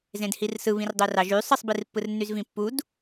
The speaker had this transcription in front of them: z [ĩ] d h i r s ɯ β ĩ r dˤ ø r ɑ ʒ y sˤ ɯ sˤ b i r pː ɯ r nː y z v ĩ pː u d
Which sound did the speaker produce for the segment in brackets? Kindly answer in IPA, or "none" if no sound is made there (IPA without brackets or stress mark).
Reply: ẽ